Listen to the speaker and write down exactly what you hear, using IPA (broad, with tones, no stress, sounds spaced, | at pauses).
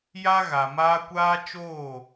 j a˦ ɣ a˨ m aː˦ kʷ aː˦ t͡ʃ oː˦˨